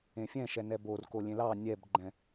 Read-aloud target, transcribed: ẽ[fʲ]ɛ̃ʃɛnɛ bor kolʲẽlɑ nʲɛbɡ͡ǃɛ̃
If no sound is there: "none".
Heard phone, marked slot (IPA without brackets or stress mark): fʲ